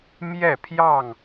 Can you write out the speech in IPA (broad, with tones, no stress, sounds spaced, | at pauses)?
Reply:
m j ɛ˥˨ pʰ j ɑ˥˨ ŋ